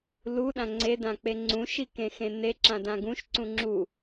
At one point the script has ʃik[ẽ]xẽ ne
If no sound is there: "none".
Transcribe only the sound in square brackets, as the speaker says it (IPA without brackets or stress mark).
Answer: ẽ